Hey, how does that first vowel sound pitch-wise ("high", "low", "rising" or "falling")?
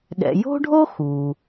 low